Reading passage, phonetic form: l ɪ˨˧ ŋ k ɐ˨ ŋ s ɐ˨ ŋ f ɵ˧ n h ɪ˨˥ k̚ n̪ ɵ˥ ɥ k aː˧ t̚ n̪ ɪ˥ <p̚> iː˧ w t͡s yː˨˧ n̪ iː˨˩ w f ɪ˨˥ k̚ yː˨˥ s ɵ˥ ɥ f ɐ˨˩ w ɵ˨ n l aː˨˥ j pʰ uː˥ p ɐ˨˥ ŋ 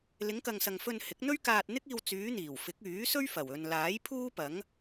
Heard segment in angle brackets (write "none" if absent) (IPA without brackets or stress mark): k̚